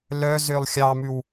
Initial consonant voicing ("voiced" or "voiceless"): voiced